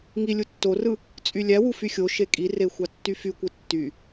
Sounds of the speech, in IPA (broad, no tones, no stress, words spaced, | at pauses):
ŋi lʲutːorɯ | t͡sʼylʲæwu fyxʲoʃe kʼire xʷɑtːyfykʷɯ tːy